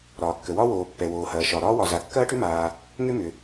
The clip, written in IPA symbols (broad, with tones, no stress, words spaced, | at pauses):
ɾɒː˩kːə˩ wɒ˥woː˩ pːɛ˩woː˩hɐː˩ʃɒ˩ ɾɒː˥wɒ˩za˩ kːɐː˥ʈʏ˥maː˩ | ŋʏ˥mʏ˩